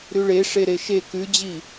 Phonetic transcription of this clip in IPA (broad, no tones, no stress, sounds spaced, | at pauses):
ɾ ʉ ɭ e ʂ e ɾ e ʃ e k ʉ d͡ʑ i